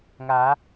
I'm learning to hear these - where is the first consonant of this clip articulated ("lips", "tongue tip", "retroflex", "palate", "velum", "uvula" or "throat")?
velum